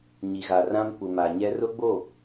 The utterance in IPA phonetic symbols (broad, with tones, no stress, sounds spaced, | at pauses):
ɲ i˨ ɣ a˨ r ã˦ m kʷ ɪ˨ m a˨ ɲ ɛ˦ r ʊ˦ ɡ͡b o˦˨